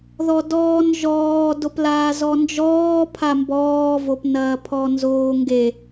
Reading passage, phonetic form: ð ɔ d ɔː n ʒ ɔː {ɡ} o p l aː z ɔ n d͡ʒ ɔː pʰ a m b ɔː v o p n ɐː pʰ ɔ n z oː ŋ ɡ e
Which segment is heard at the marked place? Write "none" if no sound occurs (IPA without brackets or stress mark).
d